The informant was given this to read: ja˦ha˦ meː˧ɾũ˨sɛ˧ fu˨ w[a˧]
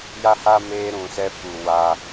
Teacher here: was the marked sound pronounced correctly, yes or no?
yes